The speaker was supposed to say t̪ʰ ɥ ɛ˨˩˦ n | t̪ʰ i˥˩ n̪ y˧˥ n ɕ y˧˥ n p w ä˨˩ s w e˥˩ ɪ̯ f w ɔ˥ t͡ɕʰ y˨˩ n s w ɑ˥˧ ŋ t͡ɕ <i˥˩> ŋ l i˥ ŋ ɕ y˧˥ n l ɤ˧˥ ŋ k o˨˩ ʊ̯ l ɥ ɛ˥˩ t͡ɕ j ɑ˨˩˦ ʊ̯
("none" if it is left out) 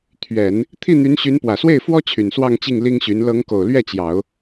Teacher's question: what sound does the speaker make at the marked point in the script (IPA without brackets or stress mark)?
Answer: i˥˩